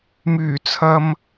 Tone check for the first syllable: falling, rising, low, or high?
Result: low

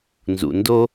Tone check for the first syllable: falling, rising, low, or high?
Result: low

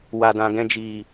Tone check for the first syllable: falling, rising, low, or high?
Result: low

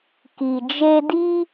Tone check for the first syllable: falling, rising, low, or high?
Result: low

